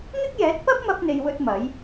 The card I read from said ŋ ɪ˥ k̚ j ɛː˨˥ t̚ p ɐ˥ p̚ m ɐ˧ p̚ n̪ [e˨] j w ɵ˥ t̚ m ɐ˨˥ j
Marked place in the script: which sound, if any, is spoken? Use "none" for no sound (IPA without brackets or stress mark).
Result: e˧